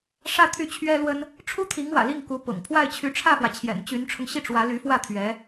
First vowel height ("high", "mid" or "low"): low